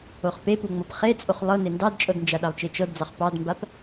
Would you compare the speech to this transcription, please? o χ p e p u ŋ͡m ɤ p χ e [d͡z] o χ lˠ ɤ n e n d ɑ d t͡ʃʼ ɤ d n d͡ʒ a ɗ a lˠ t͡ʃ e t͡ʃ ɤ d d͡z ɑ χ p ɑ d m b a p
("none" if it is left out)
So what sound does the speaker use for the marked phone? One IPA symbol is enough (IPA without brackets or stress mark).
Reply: t͡sʼ